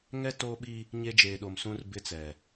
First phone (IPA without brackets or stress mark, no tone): ŋ